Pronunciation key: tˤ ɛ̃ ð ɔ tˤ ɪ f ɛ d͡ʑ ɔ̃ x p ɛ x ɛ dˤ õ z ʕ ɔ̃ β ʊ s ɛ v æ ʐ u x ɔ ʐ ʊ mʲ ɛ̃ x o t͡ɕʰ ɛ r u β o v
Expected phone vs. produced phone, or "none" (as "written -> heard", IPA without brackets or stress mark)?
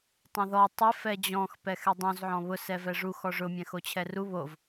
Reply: æ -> ɛ